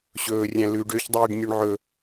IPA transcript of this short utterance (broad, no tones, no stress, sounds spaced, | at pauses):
ɕ ɵː rʲ æ̃ l ʉ ɖ ø ç dˤ iː ɖ nʲ ø ɳ ʕ ɵ